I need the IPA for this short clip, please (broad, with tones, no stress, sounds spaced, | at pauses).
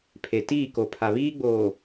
pʰ e˨ t iː˦˨ k o˨ pʰ a˨ β iː˦ ɡ͡b oː˨